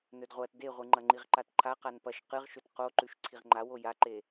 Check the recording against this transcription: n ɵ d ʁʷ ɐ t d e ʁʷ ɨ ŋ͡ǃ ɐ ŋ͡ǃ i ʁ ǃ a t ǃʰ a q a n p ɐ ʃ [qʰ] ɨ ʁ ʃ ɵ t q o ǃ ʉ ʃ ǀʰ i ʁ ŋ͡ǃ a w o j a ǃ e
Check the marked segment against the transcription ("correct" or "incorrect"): incorrect